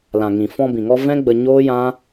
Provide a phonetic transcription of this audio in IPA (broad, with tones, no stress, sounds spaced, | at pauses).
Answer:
l ã˨ ŋ ĩ˨ f ɔ̃˧ b ĩ˨ ŋ ɔ˧ v ɛ̃˦ ɡ͡b ə˧ ɲ oː˦ j ã˦